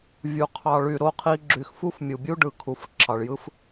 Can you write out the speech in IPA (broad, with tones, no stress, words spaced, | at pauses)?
vʲu˨qʰɑ˨ɭy˨ ɾo˨qʰi˨ ɡ͡ǁy˨xfu˦fmʲu˨bʲu˦ ɖɯ˨ kʰu˨f ǁʰɑ˨ɭjɯ˦f